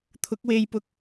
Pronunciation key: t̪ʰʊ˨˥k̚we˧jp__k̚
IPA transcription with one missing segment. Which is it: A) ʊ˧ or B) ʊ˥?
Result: A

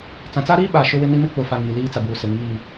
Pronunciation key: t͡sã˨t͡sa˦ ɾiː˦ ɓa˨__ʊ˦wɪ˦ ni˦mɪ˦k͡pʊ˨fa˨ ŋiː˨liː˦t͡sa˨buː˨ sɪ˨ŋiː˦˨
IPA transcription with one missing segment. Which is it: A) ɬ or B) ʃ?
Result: B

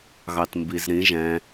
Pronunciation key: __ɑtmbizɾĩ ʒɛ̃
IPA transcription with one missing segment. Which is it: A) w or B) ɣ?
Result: B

